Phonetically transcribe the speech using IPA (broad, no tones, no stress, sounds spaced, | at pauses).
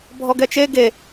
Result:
bʱ ɔ ɡ ɛ t͡ʃ e ɡ e